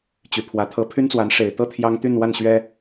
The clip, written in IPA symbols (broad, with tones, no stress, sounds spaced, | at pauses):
t͡ɕ y˨˩ pʰ w ä˧˥ t̪ʰ ɤ˧˥ pʰ y˥ n t͡s w a˧˥ n ʂ e˨˩ ɪ̯ t̪ ɤ˥ t̪ʰ j ɑ˥ ŋ t̪ y˥˧ n w a˥˩ n ɕ ɥ ɛ˥